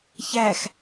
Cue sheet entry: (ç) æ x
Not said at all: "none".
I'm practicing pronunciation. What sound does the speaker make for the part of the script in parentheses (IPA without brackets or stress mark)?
ç